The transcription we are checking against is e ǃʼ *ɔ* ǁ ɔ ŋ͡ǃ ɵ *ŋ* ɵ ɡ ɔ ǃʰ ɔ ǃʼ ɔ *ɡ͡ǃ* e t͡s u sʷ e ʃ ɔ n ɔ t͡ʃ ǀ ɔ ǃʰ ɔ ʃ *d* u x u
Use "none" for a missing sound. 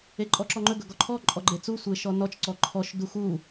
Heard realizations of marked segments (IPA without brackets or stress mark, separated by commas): ɔ, ɡ, ɡ͡ǃ, d